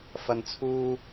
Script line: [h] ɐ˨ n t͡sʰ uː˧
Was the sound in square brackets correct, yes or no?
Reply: no